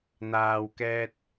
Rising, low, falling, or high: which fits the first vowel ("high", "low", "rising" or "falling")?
low